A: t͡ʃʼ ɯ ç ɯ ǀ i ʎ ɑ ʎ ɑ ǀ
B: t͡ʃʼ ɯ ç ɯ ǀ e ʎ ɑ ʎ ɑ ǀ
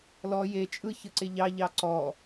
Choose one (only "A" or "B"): B